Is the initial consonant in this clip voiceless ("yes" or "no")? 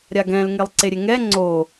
no